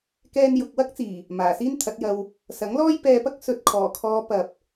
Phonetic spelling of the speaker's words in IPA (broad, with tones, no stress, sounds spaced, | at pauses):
k ɛː˧ n j ʊ˨ k̚ w ɐ˥ k̚ t͡s iː˨˩ | m aː˨˩ s iː˥ n t̪ʰ ɐ˨˥ t̚ j ɐ˧ w | s ɐ˨˥ ŋ l ɔː˥ j p ɛː˧ p ɐ˥ k̚ s ɵ˨ t̚ kʰ ɔː˨˩ kʰ ɔː˨˧ p ɐ˨ p̚